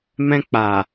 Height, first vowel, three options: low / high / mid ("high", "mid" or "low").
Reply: mid